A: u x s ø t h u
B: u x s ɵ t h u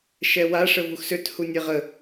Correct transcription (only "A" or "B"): A